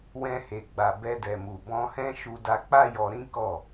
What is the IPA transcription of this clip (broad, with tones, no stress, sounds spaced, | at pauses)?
w ɛ̃˧ h e˨ ɡ͡b a˨ b ɛ˧ d ɛ˨ m u˨ b ɔ̃˧ h ɛ̃˦ ʃ u˧ d a˧ k͡p a˦ j ɔ˧ ɾ ĩ˦ k ɔ˦˨